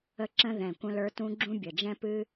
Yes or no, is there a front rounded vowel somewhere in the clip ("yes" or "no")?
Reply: no